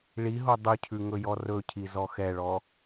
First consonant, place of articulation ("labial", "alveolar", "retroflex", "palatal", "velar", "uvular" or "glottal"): retroflex